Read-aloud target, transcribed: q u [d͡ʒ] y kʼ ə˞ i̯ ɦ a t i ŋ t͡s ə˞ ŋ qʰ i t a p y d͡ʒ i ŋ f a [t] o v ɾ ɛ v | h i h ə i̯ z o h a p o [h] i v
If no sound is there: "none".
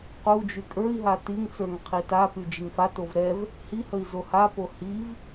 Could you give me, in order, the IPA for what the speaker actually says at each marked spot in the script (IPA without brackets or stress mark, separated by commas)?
d͡ʒ, t, h